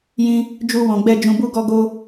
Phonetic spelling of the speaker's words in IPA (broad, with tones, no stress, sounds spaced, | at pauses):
j ĩ˧ | d͡ʒ u˧ w ɔ̃˨ ɡ͡b ɛ˧ d͡ʒ ũ˧ b u˦ ɡ ɔ˦ ɡ o˦